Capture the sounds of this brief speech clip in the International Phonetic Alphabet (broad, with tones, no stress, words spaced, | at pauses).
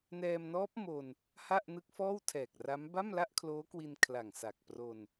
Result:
nɛː˧mnɔː˦˥p̚ mo˧n | ha˥˩ʔnɯ˦˥k̚fɔː˥˩w tʰɛː˨˩k̚ra˦˥m ba˥˩mla˥˩ʔkʰloː˦˥kwi˧n kʰla˨˩ŋsa˨˩k̚ pro˧n